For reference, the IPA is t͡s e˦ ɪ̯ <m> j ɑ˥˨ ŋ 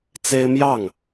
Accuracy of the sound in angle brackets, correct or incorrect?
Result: correct